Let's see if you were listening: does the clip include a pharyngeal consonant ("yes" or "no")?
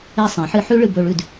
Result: yes